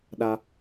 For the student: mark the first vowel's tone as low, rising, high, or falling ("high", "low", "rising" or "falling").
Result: high